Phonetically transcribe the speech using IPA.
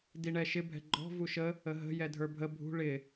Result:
d i ɳ ɛ ʃ ɪ bʱ ɛ̤ ɡ͡ǃ ɔ̤ v u ʃ ə | ə ɦ ə̤ j ɛ dʱ ə˞ bʱ ə bʱ ṳ ɭ ɪ

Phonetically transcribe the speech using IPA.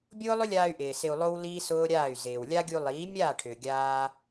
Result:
bʲ ʊː˦ lˠ ʏ˦ lʲ aː˧ y̯ ʔ ɪː˨ s ɪ˧ u̯ lˠ o˦ w l iː˦ s ʊː˦ ɾʲ aː˦˨ y̯ z ɪː˨ w lʲ a˦ ɡʲ u˧ lˠ iː˨˦ mʲ aː˦˨ ʈʰ ʏː˨ ɡʲ aː˦

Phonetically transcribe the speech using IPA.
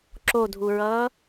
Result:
ǁ o dʱ u ɹ ʌː

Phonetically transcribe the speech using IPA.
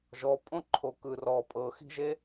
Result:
ʒ ɔ pʼ õ ǃʰ o k ɯ r ɔ pʼ ɤ x i̤ ʒ e

